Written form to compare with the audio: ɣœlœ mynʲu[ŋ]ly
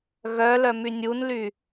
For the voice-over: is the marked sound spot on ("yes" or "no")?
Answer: no